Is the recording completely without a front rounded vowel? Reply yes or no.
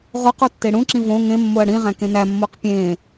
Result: yes